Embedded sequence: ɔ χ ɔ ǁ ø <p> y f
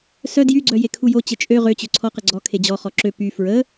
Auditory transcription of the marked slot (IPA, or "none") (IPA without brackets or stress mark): p